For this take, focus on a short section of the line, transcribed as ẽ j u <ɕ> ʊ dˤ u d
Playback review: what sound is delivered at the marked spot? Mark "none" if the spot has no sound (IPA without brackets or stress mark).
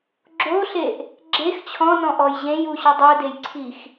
ɕ